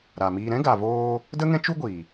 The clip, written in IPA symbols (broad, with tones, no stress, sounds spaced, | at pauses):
ɾ a˨ m iː˧ ɾ ɛ̃˦ ɡ a˨ v oː˧ | d ə˦ ŋ ɛ̃˦ t͡ʃ u˦ ɡʷ i˨